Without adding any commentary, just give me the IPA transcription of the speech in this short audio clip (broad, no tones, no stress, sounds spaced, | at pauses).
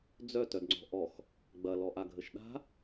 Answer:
d͡z œ t œ d ŋ͡ǀ ɔ̤ ʔ ɔ x | ɡ͡b ɐ l ɔ ʔ a ɡʱ ə ʃ ɗ a̤